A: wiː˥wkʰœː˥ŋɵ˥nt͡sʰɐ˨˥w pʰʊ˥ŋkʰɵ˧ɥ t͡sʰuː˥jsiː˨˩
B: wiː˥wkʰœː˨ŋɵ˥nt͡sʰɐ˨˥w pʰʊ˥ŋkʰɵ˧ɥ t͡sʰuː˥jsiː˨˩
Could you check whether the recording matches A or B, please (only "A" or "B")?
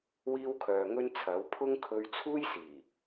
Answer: B